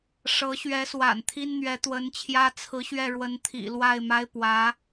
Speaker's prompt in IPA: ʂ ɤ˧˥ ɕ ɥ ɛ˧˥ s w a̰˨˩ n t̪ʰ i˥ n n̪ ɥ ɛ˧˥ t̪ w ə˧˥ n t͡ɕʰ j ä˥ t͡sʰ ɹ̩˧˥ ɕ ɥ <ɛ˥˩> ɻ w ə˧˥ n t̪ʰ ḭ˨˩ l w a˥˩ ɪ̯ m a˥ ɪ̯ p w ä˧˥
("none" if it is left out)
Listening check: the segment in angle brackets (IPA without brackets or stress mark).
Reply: ɛ˥˩